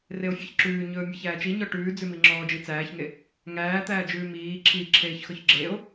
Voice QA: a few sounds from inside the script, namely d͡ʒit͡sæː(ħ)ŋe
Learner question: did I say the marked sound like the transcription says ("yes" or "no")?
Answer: no